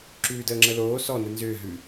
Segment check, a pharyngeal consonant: absent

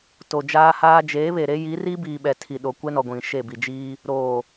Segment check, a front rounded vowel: absent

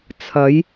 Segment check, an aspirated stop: present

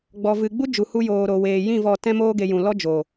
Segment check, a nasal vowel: present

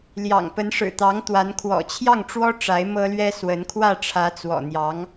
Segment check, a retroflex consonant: present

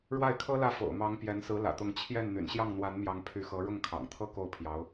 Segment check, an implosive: absent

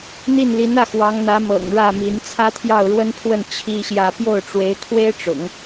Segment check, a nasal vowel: absent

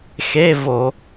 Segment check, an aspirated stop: absent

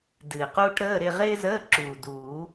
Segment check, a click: present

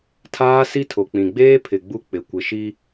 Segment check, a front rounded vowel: absent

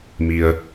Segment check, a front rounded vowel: absent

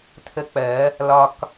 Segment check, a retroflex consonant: absent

